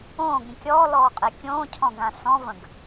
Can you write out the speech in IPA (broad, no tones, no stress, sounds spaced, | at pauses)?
õː ɡ ɾʲ ə̃ kʲ ɔː l ɔː qʼ ɛ kʲ õː cʰ ɔ̃ ɡ ã s ɔ̃ v ə̃ ɡ